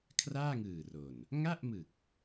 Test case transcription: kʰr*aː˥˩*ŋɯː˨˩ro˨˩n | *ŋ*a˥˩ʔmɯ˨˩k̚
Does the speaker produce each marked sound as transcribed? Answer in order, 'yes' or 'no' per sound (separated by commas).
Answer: yes, yes